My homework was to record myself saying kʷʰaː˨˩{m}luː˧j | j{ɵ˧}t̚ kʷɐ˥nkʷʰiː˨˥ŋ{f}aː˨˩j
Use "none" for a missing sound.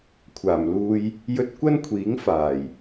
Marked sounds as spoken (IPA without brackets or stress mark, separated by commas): m, ɵ˧, f